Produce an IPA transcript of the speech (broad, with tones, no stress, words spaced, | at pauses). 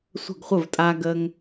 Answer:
sʷə̤˥˩ɡχʷə˥˩vtʼa˦ ɡəː˦ŋ